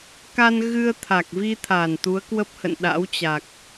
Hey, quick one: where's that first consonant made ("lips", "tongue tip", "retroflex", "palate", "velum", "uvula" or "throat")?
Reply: velum